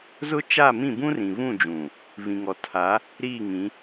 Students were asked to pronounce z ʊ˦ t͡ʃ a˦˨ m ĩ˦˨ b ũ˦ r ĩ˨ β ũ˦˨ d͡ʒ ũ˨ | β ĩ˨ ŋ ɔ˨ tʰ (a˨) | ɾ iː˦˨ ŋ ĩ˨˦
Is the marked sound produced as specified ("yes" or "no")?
no